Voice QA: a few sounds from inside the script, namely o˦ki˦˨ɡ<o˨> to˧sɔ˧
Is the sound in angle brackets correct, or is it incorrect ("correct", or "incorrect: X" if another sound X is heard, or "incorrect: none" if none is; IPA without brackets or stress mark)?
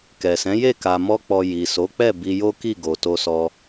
correct